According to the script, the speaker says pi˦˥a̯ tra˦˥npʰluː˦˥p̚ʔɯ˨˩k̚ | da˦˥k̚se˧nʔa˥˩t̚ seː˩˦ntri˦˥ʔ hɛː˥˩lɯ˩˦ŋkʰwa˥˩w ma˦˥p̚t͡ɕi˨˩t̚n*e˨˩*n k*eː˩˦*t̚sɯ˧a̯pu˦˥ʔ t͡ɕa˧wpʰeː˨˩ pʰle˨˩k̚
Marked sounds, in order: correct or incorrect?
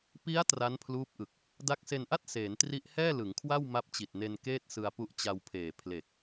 incorrect: e˧, incorrect: eː˥˩

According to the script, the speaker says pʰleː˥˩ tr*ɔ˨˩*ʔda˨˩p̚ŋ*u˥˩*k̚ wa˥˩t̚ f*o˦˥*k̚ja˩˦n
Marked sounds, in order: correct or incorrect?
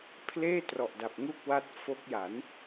correct, correct, correct

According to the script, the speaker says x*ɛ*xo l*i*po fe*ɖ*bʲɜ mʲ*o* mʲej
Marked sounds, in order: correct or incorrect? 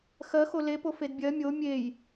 incorrect: ɜ, incorrect: e, incorrect: d, correct

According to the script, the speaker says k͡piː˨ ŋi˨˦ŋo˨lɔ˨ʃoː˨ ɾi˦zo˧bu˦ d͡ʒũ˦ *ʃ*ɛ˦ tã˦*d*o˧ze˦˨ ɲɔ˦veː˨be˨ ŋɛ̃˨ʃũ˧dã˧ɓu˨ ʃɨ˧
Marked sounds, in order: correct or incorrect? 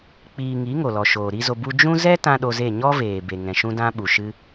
incorrect: z, incorrect: ɗ

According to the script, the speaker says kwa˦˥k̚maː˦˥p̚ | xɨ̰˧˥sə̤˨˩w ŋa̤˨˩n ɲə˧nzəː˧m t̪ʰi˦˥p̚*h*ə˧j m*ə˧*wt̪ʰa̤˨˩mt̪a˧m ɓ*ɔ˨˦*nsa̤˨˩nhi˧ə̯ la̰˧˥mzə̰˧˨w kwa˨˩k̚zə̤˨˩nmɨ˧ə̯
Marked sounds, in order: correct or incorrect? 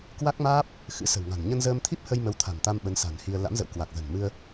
correct, incorrect: ə˨˦, incorrect: ə˨˦

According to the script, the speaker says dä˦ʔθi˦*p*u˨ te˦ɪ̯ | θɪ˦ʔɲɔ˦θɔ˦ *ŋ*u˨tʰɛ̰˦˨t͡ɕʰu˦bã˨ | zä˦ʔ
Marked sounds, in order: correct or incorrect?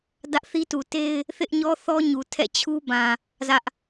incorrect: t, incorrect: ɲ

